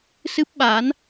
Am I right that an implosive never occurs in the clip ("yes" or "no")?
no